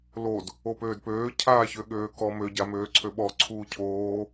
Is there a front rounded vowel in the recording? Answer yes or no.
yes